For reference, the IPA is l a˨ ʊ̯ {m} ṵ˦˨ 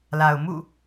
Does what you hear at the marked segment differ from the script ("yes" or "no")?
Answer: no